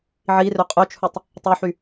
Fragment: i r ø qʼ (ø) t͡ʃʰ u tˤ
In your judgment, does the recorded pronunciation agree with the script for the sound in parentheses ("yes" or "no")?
yes